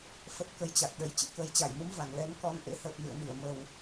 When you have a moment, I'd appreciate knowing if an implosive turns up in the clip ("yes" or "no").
yes